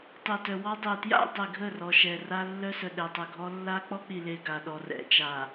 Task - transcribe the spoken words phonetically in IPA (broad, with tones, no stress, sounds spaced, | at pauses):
tˤ e˨ t œ˨ w ɔ˦ dˤ e˨ t j a̰˦ dˤ e˨ ɡʱ ə˦˨ r ɔ˨ ʃ ɛ˨ r a˦ lː œ˦ s œ˨ ɗ ɛ˨ tˤ ə˨ ɡʱ ɔ˦ lː a˦ k͡p ɔ˦ k͡p i˨ l e˨ ɡ a˨ ɗ ɔ˨ r ɛ̰˨ t͡ʃ a˨